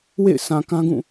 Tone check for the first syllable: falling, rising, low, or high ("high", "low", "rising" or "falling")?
falling